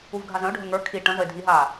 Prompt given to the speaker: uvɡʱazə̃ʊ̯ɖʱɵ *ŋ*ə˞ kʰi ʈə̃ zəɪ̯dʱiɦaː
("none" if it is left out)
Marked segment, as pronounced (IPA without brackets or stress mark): ŋ